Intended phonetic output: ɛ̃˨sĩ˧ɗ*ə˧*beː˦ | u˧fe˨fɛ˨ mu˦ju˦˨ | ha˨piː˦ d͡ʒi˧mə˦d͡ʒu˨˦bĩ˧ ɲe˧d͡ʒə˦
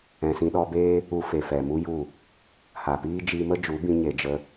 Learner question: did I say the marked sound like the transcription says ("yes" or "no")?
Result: no